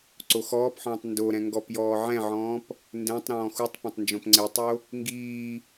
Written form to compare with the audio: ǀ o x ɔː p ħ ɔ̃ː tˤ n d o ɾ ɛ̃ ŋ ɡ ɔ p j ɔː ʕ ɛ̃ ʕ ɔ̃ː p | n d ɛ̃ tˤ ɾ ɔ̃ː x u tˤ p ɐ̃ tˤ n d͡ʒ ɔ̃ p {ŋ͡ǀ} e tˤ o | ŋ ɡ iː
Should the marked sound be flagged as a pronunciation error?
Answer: no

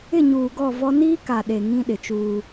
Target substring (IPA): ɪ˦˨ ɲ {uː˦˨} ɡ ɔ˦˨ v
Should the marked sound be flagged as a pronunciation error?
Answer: yes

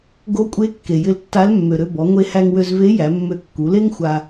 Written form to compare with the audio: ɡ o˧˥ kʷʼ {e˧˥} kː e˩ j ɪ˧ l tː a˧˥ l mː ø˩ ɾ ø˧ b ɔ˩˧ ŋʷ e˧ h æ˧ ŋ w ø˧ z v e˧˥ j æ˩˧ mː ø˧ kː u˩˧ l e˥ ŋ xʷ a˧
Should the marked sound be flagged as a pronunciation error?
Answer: no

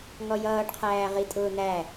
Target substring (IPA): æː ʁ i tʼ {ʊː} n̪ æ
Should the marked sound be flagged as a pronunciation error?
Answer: no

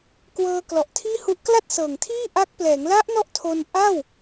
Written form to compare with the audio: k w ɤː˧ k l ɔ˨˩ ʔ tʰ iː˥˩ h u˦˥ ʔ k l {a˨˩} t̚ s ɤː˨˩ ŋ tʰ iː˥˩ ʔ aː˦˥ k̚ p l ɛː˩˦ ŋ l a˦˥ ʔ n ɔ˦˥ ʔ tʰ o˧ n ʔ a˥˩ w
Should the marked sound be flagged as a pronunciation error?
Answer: yes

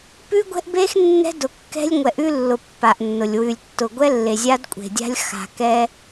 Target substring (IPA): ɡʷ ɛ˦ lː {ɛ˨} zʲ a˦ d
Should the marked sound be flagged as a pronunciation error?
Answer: yes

